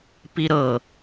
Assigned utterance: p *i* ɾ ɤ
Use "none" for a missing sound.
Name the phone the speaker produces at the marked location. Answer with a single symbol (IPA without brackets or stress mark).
i